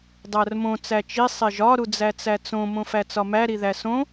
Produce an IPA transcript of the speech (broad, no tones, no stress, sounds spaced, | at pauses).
dˤ æ r m õ t͡s æ t͡ʃ i sˤ e ʒ ɒ ɾ u d͡z æ t͡s æ t͡s õ m õ f æ t͡s ɒ m æ ɾ i ð æ s õ